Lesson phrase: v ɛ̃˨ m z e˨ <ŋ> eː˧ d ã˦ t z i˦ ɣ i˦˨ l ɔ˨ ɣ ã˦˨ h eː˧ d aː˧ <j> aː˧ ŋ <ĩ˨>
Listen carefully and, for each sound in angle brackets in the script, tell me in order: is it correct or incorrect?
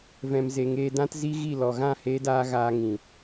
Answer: correct, incorrect: ɣ, correct

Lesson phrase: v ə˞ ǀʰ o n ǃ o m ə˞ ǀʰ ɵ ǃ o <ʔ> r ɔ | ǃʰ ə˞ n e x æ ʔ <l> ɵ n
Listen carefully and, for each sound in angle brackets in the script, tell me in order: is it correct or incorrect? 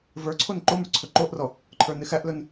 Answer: correct, correct

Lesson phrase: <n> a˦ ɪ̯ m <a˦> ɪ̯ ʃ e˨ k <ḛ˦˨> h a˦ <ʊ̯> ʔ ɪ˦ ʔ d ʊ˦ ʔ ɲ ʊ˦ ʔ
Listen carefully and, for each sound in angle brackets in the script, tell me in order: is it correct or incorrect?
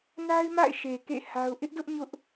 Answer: correct, incorrect: a̰˦˨, correct, correct

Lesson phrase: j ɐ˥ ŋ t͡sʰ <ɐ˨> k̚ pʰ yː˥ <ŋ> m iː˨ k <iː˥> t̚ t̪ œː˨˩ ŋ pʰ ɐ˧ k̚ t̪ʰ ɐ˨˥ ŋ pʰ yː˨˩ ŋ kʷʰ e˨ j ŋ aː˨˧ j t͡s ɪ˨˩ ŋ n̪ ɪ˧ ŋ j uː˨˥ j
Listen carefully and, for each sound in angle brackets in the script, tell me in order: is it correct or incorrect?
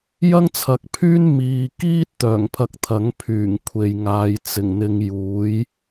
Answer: correct, incorrect: n, correct

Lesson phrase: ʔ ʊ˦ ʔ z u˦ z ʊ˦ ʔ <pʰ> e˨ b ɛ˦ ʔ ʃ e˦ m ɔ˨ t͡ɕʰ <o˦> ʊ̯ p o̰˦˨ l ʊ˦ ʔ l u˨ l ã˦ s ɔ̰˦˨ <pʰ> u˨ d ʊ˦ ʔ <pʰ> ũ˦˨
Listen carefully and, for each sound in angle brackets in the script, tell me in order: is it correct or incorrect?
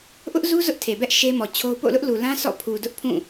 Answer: incorrect: tʰ, correct, correct, correct

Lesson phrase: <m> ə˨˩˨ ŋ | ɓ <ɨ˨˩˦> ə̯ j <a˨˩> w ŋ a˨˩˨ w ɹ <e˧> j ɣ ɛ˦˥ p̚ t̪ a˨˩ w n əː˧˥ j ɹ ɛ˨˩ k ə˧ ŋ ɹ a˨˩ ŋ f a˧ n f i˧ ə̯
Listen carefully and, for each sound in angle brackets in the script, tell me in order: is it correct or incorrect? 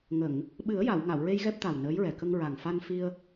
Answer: incorrect: ŋ, correct, incorrect: a˨˩˨, correct

